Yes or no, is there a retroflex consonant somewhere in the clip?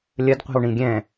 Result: yes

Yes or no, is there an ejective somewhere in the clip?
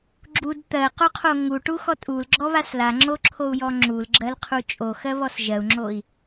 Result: yes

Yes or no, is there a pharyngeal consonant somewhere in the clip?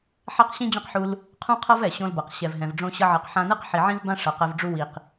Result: yes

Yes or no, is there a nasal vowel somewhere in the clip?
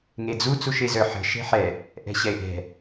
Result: no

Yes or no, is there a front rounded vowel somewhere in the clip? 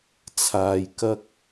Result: no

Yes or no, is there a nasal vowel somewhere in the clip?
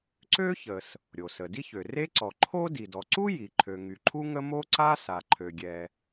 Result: no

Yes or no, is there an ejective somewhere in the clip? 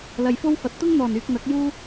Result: no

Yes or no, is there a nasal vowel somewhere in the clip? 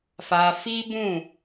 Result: yes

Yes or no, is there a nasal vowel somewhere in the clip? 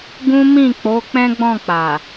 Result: yes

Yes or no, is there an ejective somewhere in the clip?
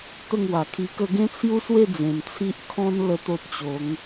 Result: no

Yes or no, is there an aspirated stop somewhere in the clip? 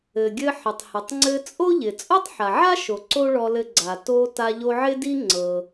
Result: no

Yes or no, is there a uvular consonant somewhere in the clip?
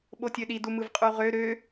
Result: yes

